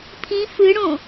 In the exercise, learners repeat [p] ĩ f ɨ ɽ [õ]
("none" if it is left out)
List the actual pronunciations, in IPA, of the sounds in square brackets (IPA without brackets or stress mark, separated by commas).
pʰ, õ